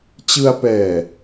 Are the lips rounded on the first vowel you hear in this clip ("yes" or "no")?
no